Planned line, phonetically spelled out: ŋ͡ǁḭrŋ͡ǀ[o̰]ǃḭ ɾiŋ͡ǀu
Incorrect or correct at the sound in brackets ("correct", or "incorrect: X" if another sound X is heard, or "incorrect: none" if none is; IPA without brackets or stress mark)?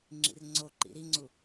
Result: incorrect: o